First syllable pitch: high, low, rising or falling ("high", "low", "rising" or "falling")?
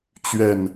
low